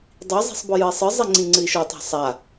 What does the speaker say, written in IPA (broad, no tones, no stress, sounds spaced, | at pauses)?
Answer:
dˤ i zˤ i̤ sˤ b ɔ j ɨ i̯ sˤ ɨ zˤ i ŋ͡ǀ ĩ ŋ͡ǀ ɨ i̯ ʃ ɔ tˤ a̤ sˤ a